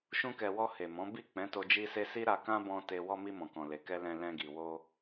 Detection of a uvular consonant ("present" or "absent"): absent